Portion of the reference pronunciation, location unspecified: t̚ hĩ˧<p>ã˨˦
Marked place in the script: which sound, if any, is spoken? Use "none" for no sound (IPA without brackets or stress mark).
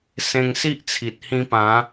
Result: p